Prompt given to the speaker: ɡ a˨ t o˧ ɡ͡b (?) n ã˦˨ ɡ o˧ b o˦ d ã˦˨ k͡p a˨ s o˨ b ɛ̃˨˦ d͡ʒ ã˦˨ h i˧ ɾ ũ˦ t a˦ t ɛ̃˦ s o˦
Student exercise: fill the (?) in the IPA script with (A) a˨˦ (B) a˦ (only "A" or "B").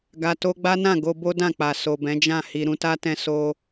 B